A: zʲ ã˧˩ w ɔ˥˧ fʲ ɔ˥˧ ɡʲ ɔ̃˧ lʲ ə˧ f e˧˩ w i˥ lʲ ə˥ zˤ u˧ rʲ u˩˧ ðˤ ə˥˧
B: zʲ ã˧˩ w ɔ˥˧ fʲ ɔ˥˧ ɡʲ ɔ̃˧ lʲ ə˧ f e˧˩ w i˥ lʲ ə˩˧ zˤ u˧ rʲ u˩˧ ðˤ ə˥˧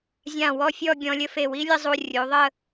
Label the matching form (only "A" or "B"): A